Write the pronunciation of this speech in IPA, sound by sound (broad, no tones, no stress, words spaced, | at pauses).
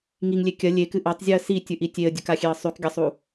ŋiŋlʲe kʲɐ lʲekɨ ʔatˤzʲɨə̯ sitʲɨʔi tʲeə̯dʲɵkaxʲeə̯ sˤʉkɡʲasˤu